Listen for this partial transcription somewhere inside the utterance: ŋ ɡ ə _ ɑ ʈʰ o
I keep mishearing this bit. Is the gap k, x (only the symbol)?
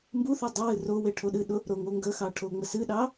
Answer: x